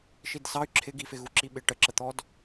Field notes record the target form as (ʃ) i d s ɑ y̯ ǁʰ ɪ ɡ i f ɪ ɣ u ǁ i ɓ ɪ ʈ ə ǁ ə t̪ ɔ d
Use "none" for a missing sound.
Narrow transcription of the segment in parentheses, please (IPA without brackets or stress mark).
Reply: ʃ